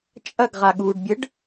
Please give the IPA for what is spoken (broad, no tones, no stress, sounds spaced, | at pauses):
t͡ʃʼ ɐ ɡ ʁ a ɠ uː ɖ bʲ ə ɖ